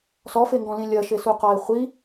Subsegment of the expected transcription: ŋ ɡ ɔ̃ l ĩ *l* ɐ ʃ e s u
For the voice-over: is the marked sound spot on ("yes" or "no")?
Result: no